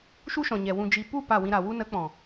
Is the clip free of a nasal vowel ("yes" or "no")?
no